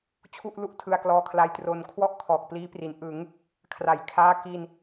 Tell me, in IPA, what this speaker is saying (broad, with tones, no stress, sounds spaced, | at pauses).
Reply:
t͡ɕʰ u˥˩ ʔ l u˥˩ ʔ tʰ ɯ˧ a̯ k l ɔː˧ kʰ l a˧ j t r o˧ n kʰ w ɔ˥˩ ʔ kʰ ɔː˨˩ k̚ p l iː˦˥ p r i˩˦ n ʔ ɯ˩˦ ŋ | kʰ r a˩˦ j kʰ aː˦˥ k i˧ n